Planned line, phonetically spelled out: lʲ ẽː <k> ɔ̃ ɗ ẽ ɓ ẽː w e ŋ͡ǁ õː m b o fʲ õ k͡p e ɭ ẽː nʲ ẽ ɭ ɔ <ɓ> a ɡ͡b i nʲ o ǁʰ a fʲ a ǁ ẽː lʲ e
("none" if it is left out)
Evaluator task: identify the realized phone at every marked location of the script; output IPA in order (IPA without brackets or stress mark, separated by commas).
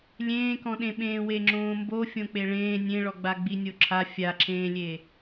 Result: k, ɡ͡b